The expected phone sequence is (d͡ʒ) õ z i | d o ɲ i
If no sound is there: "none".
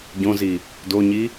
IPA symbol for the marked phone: ɟ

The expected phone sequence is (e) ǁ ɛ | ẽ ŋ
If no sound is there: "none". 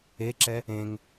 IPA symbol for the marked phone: e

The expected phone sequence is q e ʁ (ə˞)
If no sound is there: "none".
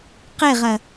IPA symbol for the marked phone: ɐ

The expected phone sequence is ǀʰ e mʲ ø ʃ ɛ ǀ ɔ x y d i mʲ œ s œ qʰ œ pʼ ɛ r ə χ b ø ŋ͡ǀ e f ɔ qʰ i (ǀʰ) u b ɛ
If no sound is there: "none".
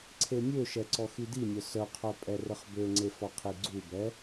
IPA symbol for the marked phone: ɡ͡ǀ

